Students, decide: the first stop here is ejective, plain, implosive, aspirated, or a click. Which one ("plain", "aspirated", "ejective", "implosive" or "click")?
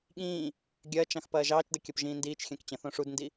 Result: implosive